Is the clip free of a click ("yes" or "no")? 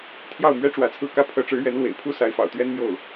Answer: yes